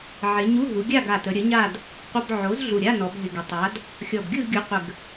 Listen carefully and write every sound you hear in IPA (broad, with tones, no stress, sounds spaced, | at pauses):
ʕ ɪ˩˧ ɲ u˧˥˧ ɦ u˩˧ ɡʲ a˥˨ ɡ a˨˩ t ə˩˧ ɾʲ ə˩˥ ɲ a˥˨ d | qʷ ə˧˥˧ b ʕ o˩˥ z ɮ u˨˩ ɾʲ a˧˥˧ n ɔ˩˧ b ɦ ɪ˨˩ ɡ ɪ˩˧ tˤ a˩˥ d | xʲ ɔ˨˩ b ɡʲ u˥˨ z ɡʲ u˩˥ qʷ ə˨˩ ɡ